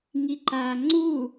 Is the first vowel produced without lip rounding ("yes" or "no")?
yes